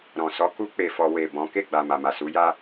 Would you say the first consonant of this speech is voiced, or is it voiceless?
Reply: voiced